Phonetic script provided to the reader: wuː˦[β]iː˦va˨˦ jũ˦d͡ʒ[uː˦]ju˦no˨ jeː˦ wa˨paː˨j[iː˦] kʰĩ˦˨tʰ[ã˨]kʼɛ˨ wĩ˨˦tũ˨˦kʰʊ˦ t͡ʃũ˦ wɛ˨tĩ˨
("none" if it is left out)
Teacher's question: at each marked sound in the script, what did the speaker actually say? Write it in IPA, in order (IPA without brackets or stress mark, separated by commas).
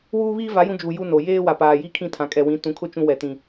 β, uː˨, i˦, ã˨